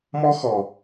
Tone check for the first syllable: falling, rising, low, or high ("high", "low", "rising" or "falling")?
high